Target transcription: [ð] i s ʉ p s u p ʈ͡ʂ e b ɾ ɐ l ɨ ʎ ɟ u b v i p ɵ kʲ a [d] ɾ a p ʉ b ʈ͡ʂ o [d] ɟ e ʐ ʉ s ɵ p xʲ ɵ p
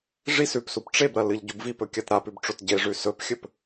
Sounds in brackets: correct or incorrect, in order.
incorrect: ʐ, incorrect: t, incorrect: t

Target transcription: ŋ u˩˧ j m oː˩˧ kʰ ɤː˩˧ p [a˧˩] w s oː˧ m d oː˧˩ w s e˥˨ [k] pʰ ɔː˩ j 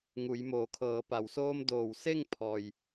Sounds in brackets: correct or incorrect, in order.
incorrect: a˩, incorrect: ŋ

